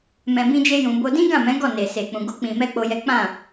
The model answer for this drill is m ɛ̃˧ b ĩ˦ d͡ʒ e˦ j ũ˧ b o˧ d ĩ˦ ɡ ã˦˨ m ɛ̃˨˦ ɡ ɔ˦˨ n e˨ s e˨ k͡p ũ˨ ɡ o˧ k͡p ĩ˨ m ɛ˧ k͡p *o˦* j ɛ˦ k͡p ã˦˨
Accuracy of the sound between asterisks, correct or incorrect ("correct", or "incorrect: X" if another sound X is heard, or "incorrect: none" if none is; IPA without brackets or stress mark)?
correct